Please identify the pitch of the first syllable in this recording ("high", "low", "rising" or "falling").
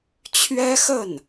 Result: high